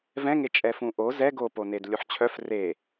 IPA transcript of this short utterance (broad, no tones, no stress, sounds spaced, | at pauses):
v ɛ̃ ŋ e t͡ʃʼ ɛ f ũ ʔ o z ɛ ɡ o p o n e d lʲ u ħ t͡ɕʰ œ f r e